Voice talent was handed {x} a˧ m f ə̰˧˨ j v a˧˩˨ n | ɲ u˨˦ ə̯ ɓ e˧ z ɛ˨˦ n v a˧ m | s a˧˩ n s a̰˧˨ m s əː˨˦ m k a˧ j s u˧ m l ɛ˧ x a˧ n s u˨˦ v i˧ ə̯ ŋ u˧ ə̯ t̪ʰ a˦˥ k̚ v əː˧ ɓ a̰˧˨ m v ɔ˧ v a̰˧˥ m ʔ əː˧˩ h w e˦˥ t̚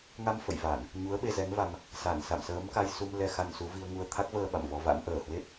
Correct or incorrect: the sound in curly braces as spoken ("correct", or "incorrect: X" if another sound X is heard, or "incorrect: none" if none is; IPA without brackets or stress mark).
incorrect: ŋ